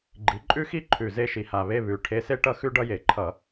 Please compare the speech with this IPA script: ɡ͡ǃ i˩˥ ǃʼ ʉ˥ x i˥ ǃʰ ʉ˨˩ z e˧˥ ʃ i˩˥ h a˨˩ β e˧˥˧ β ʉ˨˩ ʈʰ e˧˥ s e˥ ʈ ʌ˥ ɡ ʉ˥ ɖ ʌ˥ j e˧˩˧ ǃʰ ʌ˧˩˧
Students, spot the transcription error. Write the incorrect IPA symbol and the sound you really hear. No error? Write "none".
ɡ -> x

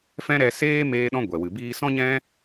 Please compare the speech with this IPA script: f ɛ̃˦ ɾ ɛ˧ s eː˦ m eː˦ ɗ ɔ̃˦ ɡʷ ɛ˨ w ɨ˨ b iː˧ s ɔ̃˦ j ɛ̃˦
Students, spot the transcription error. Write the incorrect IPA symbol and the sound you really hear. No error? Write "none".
j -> ɲ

